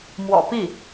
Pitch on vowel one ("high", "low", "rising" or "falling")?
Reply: low